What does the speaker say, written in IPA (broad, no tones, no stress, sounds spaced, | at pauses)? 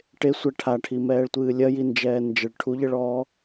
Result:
ʈ e sʷ ɛ ʈʰ a ʈʰ i m ɛː ɭ tʷ ɨː lʲ ɐ j i n d͡ʒ ɛː n d͡ʒ ɘ ɭ ʈʰ u ʎ ɘ ɭ ɔː